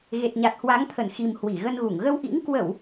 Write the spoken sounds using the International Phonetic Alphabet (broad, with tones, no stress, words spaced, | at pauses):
ɣe˨˩t̚ɲa˨˩t̚hwa˨˦ŋt̪ʰə˧˩n xi˨˩m hwi˧˩ɣə˧nɣu˧˩ŋ ɣə˧wʔḭ˧˥ŋ kwə˧˩˨w